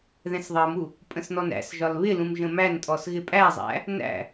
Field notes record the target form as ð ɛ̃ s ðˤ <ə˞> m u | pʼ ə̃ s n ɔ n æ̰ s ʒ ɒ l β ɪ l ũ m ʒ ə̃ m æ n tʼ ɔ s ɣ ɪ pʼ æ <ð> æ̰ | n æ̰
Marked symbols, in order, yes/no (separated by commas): no, no